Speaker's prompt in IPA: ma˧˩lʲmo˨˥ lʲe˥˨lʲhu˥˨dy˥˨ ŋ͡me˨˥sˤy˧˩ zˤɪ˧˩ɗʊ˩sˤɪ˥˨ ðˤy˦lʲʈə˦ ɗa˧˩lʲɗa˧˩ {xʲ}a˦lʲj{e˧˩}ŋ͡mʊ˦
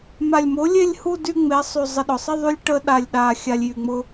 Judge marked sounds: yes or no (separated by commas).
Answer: yes, no